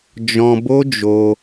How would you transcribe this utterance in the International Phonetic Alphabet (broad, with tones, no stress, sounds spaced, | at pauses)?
d͡ʒ ɔ̃˧ b o˦ d͡ʒ o˧